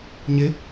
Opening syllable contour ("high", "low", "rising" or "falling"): rising